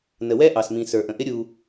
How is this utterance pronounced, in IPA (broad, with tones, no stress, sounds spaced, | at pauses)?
n ə˨ w ɛ˦ ʔ ɑ˨ s m ĩ˨ s ə˞˨ ʔ ə̃˨ ʔ ɪ˦ ɾʲ u˦